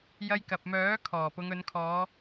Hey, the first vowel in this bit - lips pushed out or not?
no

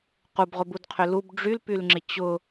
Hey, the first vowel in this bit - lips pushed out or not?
yes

